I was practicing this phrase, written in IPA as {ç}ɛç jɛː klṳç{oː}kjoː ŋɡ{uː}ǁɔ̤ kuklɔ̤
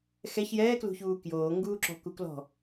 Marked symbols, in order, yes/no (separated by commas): no, no, yes